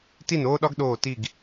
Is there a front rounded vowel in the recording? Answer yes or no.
no